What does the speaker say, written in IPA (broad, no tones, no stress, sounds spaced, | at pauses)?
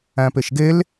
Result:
æ̃ p e ʃ ɡ e l